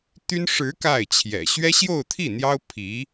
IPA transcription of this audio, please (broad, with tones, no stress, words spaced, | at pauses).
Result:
t̪y˥n ʂɻ̩˧˥ ka˥˩ɪ̯t͡ɕʰjɛ̰˨˩ ɕɥɛ˥ɕjo˥˧ʊ̯t̪ʰi˥˩n̪jɑ˥ʊ̯ pʰi˧˥